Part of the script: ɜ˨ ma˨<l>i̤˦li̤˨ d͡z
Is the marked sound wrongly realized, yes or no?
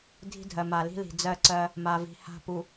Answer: no